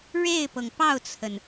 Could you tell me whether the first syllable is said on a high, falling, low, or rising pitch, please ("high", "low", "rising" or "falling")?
falling